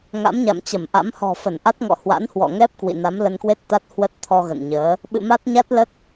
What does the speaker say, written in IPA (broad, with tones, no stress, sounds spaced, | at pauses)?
ŋ a̰˧˥ m ɲ a̰˧˨ m t͡ɕ ə˧˩ m ʔ a̰˧˥ m h ɔ̤˨˩ f ə˧˩ n ʔ a˦˥ t̚ ŋ ɔ̰˧˨ h w a̰˧˥ n h w ɔ̰˧˨ ŋ ɛ˦˥ p̚ k w ḭ˧˨ n a˨˦ m l ə˧ n k w e˦˥ t̚ t̪ a˦˥ t̚ h w ə˦˥ t̚ t̪ʰ ɔ˧ ɣ ə̰˧˨ n ɲ əː˨˦ | ɓ ɨ̰˧˨ m a˦˥ t̚ ɲ a˦˥ t̚ l ə˦˥ t̚